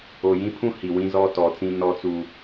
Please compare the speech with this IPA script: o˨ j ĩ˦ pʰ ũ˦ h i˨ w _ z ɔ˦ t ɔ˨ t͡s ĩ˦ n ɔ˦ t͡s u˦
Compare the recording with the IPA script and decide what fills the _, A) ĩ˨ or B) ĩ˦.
B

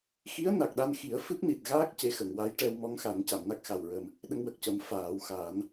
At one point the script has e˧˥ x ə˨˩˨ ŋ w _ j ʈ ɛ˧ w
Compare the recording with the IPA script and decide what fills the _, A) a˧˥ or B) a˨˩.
A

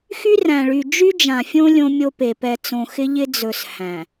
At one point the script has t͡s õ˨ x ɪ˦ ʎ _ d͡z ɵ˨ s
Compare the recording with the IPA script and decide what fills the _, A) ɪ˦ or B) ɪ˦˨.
A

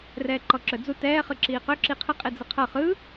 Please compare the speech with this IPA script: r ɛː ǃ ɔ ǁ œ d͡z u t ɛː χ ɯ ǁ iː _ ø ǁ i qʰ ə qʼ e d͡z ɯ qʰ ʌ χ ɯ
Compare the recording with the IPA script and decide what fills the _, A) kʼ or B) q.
B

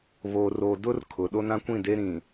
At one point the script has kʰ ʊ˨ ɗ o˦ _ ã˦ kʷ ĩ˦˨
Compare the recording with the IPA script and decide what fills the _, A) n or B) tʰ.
A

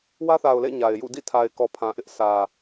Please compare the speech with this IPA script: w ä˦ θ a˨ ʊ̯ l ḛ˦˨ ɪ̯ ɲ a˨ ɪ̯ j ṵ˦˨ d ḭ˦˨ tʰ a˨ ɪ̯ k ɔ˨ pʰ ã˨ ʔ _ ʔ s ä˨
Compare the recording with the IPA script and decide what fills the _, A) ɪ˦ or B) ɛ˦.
A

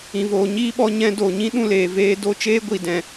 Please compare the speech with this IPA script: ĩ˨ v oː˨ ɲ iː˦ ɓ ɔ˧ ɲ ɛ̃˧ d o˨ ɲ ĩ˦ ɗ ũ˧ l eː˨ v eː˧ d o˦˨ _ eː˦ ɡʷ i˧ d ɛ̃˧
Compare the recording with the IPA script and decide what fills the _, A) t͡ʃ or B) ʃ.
A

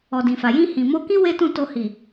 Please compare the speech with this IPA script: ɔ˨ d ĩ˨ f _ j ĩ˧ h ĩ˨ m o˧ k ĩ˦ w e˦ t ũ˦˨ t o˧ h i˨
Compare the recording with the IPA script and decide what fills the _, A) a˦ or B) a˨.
B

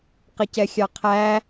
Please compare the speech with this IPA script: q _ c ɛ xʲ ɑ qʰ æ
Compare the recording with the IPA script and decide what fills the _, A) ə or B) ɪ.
B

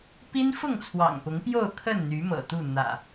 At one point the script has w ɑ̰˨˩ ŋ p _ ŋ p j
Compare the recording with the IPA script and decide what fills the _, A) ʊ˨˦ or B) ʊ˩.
A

